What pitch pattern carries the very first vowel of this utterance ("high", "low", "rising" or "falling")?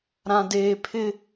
low